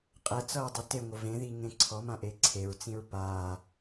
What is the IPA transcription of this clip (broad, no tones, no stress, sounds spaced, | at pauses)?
qʼ ɛ t͡s ʌ ɹ dˤ ɛ t e ŋʷ ə v ẽ ð i ŋ ẽ ǀʰ ɔ m ã ʔ e ǀʰ e ɹ t͡s ĩ ɹ p a